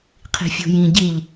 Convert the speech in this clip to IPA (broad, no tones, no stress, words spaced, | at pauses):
qʰi̤fʲṳjĩ ɟiʎ